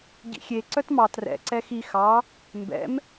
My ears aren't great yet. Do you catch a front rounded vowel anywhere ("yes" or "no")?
yes